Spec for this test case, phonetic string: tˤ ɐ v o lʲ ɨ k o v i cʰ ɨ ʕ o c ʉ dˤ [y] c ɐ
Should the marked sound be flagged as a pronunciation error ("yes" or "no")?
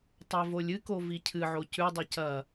yes